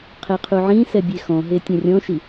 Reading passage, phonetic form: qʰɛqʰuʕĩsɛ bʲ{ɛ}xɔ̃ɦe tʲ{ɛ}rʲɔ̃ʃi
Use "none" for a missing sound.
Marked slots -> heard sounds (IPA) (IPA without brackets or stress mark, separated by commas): e, ɛ̃